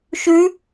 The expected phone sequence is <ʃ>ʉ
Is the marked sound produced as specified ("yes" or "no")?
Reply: yes